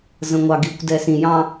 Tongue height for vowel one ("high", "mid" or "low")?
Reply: mid